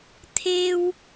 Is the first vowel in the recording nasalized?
no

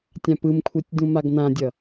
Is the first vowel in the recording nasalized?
yes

